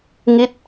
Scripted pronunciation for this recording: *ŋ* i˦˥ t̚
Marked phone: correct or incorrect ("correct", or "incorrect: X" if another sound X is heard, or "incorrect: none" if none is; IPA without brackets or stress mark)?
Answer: correct